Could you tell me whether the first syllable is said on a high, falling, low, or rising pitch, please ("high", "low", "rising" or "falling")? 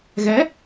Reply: rising